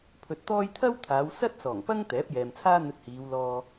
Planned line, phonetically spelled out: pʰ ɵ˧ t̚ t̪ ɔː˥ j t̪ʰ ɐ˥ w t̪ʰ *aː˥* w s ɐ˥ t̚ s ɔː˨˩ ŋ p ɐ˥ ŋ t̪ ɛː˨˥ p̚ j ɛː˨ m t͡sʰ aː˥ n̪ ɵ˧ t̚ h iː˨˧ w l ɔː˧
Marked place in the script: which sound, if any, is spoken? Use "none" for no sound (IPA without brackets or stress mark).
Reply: aː˨˧